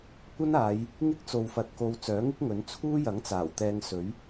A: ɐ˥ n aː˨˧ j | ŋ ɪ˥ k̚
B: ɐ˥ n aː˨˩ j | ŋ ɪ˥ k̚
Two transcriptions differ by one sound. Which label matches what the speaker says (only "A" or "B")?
A